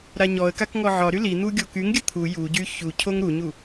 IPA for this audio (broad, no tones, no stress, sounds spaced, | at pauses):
ɾ a ɲ ɔ ə̯ k a k ŋ ɔ ʕ ɒ ɾ y l i n̪ u ɡʲ o k y ŋ ɡʲ ə t̪ʰ u j u ɟ y ç u cʰ o ŋ ɾ u ɲ u